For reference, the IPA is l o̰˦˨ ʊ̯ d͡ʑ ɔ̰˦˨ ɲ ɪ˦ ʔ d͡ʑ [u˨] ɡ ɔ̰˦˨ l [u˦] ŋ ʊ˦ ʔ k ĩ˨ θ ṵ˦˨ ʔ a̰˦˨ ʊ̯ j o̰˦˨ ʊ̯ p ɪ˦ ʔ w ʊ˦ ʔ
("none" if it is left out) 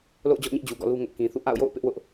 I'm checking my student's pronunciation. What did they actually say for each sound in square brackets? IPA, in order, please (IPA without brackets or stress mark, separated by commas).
u˨, u˦